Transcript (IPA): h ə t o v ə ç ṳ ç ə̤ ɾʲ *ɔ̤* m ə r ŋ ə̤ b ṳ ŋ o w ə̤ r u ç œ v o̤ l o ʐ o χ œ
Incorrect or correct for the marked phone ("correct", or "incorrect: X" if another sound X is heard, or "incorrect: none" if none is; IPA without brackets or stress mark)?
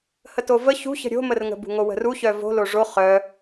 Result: incorrect: o̤